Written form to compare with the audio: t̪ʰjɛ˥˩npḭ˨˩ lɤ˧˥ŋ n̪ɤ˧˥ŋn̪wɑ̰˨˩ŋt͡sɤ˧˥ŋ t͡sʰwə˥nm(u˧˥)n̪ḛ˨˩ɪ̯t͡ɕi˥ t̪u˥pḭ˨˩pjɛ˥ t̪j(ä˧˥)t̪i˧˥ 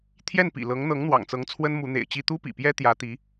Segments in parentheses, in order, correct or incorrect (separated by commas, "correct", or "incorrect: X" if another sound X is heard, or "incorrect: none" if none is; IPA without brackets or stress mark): correct, correct